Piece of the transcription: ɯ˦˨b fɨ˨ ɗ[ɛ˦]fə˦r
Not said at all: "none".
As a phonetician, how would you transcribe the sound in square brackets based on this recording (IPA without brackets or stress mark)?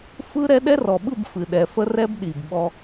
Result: ɛ˨